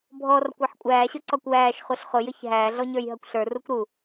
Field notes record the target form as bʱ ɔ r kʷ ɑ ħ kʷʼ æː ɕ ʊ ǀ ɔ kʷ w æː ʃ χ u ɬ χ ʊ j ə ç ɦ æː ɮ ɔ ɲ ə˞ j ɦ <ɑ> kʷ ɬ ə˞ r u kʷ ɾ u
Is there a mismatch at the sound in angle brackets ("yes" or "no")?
yes